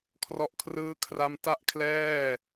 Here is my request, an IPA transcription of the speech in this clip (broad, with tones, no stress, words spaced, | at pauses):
kʰrɔ˦˥ʔkʰrɯː˥˩kʰra˥˩m ta˥˩ʔkʰlɛː˥˩